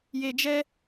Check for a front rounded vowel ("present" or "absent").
absent